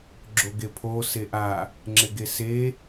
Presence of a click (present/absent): present